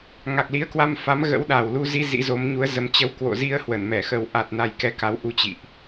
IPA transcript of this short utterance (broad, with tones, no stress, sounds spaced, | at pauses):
ŋ a˨˩ k̚ l i˨˦ ə̯ k w a˧ m f a˨˦ m ɣ ə̰˧˥ w ɗ a˨˩ w l u˧ z i˧ z ḭ˧˥ z o˨˦ m ɲ u˨˦ ə̯ z ə˨˦ m t͡ɕ ə˨˦ w k w o̰˧˨ z i˧ ə̯ h w ə˧˩ n m ɛ˧˩ x ə˨˩ w ʔ a˨˩ t̚ n a˧ j k ɛ˨˦ k a˨˦ w ʔ u˧ t͡ɕ ḭ˧˨ ʔ